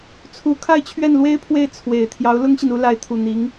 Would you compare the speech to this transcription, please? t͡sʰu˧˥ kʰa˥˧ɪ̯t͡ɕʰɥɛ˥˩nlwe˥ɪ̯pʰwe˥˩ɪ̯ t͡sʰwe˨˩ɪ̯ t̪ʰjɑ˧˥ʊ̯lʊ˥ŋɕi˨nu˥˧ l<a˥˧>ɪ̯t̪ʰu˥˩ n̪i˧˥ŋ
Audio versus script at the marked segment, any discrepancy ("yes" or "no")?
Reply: no